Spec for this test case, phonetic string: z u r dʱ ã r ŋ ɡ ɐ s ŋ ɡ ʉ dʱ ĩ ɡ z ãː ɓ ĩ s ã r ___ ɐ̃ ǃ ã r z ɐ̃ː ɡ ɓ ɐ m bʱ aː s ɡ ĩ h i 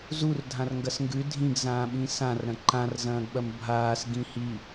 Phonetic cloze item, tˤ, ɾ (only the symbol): ɾ